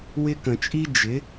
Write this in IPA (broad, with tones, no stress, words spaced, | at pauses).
wɪ˦ kə̃˨t͡ʃʼi˦ d͡ʒɪ˨˦